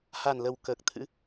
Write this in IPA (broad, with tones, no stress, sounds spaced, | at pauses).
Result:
h a˨˩ n l ə˨˩ w k əː˨˩ k̚ t̪ʰ ɨ̰˧˥